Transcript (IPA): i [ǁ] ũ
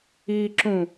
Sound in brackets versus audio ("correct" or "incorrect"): correct